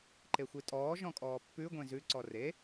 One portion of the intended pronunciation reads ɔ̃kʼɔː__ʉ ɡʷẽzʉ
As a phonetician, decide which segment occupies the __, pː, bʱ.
pː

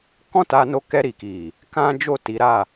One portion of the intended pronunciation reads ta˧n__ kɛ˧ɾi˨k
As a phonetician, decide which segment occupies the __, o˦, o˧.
o˧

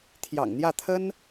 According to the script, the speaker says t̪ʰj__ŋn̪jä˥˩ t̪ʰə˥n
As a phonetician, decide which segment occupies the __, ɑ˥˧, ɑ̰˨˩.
ɑ̰˨˩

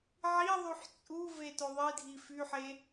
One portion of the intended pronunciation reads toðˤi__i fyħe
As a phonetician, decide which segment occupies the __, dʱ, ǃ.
dʱ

